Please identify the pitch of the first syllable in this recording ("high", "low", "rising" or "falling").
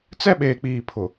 high